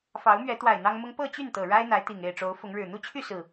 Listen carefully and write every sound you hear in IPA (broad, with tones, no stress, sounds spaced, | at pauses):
f ɑ˨˦ ʊ̯ m ɥ ɛ˨˦ t̪ w a˨˩ ɪ̯ n̪ ɑ˦ ŋ m ʊ˦ ŋ p ɤ˥˨ t͡ɕ y˥˨ n t̪ ɤ˨˩ ɻ a˦ ɪ̯ n̪ a˨˦ ɪ̯ t̪ i˨˩ ŋ e˥˨ ɪ̯ ʈ͡ʂ o˨˦ ʊ̯ f ʊ˨˦ ŋ ɻ ɻ̩˨˩ n̪ u˦ t͡ɕʰ y˥˨ s ɹ̩˨˩